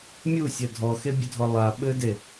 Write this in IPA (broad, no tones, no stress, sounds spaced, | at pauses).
mʲ u sʲ ɐ dʱ ɔ x e bʲ ɘ dʱ ɔ lˠ a ɓ ɘ d e